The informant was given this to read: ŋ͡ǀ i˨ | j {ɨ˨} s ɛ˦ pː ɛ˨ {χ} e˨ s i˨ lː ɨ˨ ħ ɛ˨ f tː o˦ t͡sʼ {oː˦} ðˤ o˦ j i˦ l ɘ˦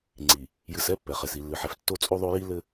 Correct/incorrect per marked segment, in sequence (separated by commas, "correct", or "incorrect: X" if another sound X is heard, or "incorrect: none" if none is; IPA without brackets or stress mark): correct, correct, incorrect: o˦